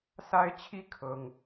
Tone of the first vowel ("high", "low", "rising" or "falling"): high